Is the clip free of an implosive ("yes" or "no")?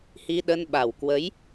no